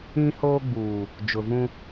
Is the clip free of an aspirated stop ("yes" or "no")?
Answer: yes